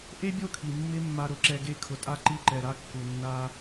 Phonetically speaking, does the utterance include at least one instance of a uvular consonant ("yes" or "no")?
no